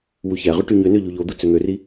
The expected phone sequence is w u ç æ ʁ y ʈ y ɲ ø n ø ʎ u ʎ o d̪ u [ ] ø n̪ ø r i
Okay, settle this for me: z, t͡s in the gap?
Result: t͡s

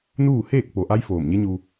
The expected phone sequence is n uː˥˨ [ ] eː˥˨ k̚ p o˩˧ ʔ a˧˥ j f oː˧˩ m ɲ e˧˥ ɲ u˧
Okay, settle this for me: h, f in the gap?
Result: h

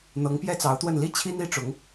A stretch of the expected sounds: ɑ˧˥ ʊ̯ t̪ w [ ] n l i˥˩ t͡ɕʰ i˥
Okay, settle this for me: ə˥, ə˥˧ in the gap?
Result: ə˥˧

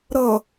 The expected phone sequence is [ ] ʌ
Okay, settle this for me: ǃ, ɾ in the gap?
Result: ɾ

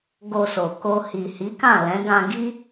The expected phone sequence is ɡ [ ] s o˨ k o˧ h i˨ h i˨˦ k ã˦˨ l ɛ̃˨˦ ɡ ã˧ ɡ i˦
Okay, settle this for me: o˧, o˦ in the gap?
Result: o˧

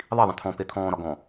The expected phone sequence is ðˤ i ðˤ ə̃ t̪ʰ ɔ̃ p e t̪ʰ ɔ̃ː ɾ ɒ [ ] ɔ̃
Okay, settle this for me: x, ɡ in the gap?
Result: ɡ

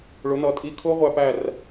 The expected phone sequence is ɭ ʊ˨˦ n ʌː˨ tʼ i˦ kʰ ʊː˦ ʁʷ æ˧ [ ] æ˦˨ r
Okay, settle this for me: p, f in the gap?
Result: p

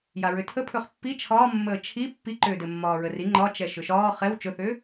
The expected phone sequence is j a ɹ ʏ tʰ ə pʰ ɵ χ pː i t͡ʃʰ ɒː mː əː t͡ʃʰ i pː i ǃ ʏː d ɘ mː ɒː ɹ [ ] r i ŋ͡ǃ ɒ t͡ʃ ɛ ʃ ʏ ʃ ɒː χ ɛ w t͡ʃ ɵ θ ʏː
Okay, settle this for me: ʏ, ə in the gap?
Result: ə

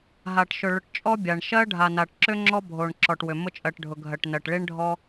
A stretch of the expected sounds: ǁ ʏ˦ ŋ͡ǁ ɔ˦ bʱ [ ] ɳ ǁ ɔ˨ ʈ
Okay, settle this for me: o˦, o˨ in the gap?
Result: o˨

